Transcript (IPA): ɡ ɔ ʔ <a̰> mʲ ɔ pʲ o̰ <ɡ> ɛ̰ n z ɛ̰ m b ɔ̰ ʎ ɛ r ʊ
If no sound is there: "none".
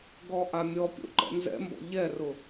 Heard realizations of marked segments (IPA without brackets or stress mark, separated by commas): a, ǃ